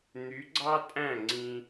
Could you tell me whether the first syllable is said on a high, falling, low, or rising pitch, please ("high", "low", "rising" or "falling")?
rising